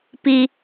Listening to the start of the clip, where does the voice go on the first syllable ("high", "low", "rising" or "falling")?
low